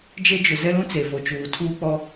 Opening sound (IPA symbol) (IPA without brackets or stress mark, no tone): d͡ʒ